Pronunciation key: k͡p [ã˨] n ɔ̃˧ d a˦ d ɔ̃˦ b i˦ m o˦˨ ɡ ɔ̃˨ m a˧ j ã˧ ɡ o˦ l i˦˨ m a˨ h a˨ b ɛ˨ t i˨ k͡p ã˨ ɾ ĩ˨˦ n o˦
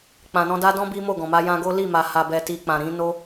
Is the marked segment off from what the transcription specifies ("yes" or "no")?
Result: no